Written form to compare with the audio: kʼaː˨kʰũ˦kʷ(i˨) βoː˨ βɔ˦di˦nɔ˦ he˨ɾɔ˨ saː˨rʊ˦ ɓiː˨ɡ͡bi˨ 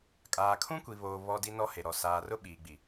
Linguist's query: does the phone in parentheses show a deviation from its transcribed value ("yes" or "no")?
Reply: no